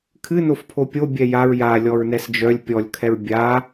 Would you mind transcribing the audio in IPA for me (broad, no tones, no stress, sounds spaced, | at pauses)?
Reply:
kʰ ɨ n o f pʰ o pʲ o bʲ ɛ j a ɹ j a lʲ ɔ ɹ n ɛ s d͡ʒ œ lʲ pʲ ɔ lʲ kʰ ɛ ɹ bʲ a